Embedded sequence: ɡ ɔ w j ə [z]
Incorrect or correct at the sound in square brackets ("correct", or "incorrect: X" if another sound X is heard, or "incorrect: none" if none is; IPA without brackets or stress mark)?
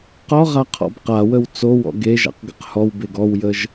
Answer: incorrect: ʒ